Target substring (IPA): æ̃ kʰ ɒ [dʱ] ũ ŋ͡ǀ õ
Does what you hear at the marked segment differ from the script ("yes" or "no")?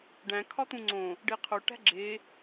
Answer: yes